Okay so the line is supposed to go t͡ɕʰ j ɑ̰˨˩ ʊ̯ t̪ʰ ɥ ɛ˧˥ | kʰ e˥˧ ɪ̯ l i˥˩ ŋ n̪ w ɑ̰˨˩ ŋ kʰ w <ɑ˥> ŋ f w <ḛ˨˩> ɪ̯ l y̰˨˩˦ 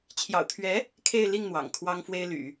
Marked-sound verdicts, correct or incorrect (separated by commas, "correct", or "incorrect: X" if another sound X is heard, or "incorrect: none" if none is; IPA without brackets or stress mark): correct, incorrect: e˥